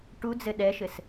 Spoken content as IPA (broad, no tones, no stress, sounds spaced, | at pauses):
ʈ u d͡z ɘ ɗ ɛ ʃ ɘ s